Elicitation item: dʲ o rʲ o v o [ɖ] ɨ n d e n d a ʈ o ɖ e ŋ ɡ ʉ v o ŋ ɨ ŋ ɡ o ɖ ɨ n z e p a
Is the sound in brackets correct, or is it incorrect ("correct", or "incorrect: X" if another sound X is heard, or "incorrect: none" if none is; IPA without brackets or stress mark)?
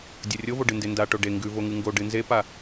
correct